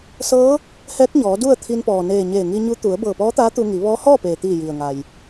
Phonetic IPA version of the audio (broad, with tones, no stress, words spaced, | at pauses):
sɤː˧˥ | hɛː˧˥k̚ɲɔː˩˧ du˥˨ə̯t̪ʰi˧npɔː˩ neː˧˩ ɲeː˧˩ŋi˧ɲu˧˥ t̪u˩˧ə̯ bɤː˧˩pɔː˧˥t̪aː˧˥ t̪u˧ŋi˩˧ ʋɔː˧˥hɔː˥˨peː˩t̪iː˧˩ ji˩ə̯ŋa˩j